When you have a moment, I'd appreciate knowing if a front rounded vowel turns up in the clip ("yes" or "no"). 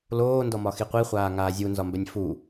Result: no